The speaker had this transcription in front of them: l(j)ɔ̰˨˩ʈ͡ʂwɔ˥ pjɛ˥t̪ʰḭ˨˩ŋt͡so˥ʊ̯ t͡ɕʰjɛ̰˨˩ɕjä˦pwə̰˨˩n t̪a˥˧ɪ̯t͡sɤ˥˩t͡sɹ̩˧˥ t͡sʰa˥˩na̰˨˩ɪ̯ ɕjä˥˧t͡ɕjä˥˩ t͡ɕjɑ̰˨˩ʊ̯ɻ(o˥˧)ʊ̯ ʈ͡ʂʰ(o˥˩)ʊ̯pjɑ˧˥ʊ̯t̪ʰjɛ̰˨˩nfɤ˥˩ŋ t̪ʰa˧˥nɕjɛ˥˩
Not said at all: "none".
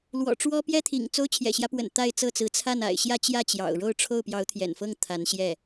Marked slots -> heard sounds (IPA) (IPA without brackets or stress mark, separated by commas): w, o˥˧, o˥˩